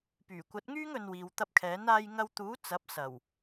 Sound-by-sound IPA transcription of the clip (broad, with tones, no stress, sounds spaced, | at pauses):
p yː˨˩ kʷ ɐ˨˥ t̚ ŋ yː˥ ŋ ɵ˧ n w iː˨ w t̪ ɐ˧ p̚ kʰ ɛː˨˥ n aː˧ j ŋ ɐ˧ w t̪ uː˨˥ t͡s ɐ˨˥ p̚ s ɐ˨˩ w